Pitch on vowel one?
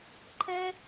high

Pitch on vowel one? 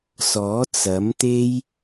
rising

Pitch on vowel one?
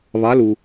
rising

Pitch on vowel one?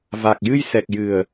low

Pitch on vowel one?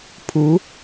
rising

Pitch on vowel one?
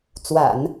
low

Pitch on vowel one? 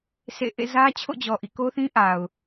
falling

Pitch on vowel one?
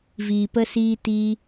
low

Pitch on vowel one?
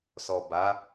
low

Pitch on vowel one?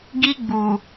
high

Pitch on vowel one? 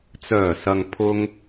low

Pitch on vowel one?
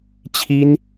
high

